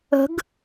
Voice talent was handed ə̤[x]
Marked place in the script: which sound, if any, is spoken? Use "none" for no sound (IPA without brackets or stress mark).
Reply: ɡ